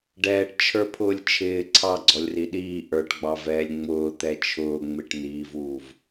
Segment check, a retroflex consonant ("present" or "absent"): present